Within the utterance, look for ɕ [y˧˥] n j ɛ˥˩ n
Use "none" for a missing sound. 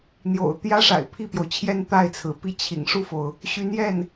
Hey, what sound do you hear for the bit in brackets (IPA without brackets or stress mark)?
y˧˥